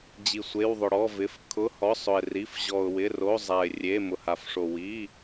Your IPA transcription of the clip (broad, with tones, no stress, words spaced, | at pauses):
d͡ʑi˩sʷe˩˧˩wðˤʊ˩ ɽɔ˩˧˩vɪ˩˧˩f kʰʊ˩˧˩ hɔ˩˧˩sˤʊ˩ɪ̯ ri˩˧˩f ʑɔ˩ʊ̯wɪ˩˧˩ro˩˧˩ zˤa˩ɪ̯rʲe˩˧˩ mʊ˩ha˩fʂo˩ wi˩˧˩